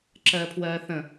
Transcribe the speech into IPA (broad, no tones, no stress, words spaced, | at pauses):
ǁɜːpʰwɜːθə̃